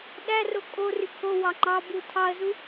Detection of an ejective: present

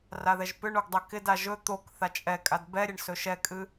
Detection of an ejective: present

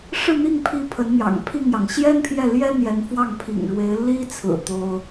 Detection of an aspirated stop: present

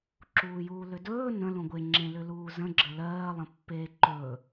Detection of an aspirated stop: absent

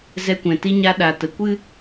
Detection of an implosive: present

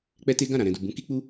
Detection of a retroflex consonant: absent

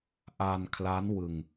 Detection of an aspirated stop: present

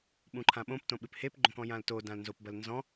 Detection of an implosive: present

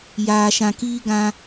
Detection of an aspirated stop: absent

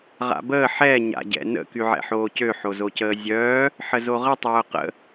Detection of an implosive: absent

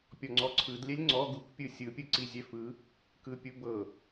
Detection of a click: present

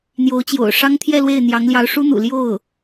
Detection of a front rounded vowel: absent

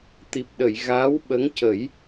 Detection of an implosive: present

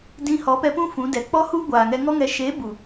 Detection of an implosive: absent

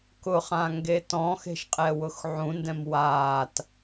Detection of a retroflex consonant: absent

